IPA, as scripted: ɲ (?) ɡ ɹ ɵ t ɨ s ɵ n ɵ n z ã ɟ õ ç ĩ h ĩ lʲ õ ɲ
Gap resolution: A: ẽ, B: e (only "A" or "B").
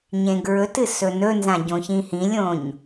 A